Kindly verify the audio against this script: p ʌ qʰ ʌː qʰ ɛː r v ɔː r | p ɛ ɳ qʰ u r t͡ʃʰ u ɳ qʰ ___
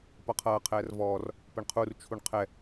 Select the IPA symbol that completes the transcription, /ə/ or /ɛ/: ɛ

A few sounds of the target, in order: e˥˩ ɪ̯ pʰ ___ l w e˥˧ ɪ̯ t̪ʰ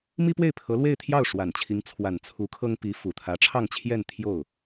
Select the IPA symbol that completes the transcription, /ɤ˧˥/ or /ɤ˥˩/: ɤ˧˥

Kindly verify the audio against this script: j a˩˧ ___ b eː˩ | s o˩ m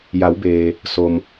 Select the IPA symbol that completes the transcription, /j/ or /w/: w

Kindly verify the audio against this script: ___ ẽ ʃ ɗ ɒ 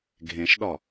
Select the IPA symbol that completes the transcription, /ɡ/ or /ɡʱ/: ɡʱ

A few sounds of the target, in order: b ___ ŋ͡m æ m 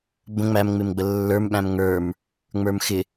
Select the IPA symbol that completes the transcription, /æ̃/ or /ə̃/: ə̃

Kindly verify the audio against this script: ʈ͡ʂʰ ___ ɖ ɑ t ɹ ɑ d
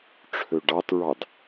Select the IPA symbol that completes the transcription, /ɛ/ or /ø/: ø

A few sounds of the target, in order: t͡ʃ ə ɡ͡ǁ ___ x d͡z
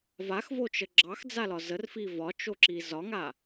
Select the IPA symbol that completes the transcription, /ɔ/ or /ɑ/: ɑ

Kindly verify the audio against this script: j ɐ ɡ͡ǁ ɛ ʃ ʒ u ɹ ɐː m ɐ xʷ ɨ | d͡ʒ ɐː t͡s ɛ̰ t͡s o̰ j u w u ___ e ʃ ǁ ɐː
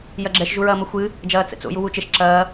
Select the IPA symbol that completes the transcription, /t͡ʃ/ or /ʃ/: t͡ʃ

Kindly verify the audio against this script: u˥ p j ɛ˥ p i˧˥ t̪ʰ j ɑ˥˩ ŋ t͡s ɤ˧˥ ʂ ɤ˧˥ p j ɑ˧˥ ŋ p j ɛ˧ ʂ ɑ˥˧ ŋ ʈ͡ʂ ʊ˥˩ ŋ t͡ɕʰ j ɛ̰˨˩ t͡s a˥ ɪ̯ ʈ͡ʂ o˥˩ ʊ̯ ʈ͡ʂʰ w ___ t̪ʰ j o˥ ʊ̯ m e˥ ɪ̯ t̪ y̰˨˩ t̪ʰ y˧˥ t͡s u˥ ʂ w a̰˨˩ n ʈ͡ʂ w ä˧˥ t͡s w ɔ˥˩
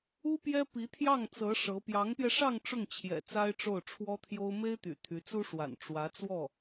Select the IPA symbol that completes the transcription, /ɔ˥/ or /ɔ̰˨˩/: ɔ˥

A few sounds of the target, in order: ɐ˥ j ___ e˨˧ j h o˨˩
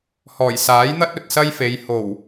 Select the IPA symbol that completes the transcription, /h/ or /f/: f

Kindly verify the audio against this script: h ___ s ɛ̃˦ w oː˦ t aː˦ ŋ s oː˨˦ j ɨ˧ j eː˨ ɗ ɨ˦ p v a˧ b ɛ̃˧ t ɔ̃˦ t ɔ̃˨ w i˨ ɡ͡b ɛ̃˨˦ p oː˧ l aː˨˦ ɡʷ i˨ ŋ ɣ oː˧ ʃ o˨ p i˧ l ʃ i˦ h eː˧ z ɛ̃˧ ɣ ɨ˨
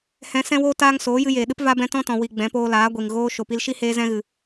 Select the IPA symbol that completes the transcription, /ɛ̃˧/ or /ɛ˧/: ɛ̃˧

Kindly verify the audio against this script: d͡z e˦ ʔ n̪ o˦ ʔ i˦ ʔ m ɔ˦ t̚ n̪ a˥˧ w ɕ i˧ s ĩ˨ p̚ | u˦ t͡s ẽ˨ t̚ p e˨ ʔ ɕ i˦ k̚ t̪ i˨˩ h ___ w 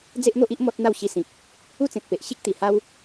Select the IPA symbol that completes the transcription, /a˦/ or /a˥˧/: a˦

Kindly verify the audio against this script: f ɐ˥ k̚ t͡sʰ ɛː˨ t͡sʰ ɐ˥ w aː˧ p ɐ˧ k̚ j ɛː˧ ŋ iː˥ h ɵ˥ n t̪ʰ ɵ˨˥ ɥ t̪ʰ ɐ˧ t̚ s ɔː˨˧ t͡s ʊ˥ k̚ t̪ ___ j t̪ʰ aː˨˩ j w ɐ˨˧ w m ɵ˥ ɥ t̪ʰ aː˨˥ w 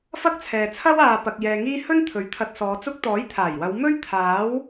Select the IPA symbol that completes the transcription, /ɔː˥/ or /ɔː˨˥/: ɔː˨˥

